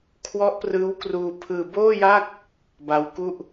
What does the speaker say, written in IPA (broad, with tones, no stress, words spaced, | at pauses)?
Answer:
kʰwɔ˦˥ʔprɯː˦˥wkruː˧ pʰɯː˧boː˥˩ja˥˩k̚ | ba˦˥w ku˥˩ʔ